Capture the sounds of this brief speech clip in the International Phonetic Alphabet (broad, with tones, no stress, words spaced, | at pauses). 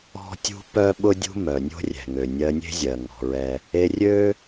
ɔ̤˦tʲṳ˦ pœ˦ɓʊ˦dʲṳ˦ mœ˨nʲo̤˦ rʲɛ̤˨ŋø˨ nʲɜ˧nʲe̤˦zʲɜ˨ ŋɔ̤˧ɹɛ˦ | e˧rʲø˦